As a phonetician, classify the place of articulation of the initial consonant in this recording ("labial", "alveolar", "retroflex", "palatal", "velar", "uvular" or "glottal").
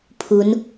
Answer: labial